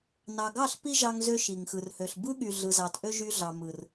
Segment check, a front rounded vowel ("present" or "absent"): present